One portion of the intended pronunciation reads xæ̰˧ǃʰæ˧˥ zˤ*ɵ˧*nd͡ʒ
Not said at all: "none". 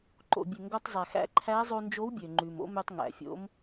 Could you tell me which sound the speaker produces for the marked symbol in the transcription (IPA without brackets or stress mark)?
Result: o˧